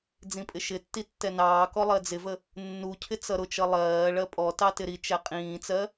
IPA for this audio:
d͡z ĩ pʼ ɪ ʃ ɪ tː i tː ɛ n ɑː k ɔ lˠ ɜ d͡z ɪ v ə | nː u cʰ ɪ t͡s ʌ ɾ ʊ t͡ʃ ʌ lˠ ɜː ɭ ɜ pʼ ɔ t ɑ t ɪ ɾ i t͡ʃ æ qʼ ĩː t͡s ɜ

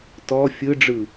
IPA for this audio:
t ɔ fʲ ɯ ɖ͡ʐ ɯ

